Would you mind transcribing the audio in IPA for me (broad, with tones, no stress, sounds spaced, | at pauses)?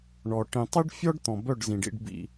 ɳ ɔ˨ ʈ ĩ˨ tˤ i˦ ɖ fʲ ɔ˦ ɖ t̪ ɔ̃˨ b œ˦˨ ɖ z ĩ˨ ɖ ḭ˧ ɖ b ḭ˧